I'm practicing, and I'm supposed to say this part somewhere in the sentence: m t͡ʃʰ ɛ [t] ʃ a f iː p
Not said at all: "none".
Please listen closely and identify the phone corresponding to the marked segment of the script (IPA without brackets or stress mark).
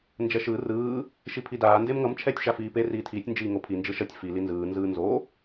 tʲ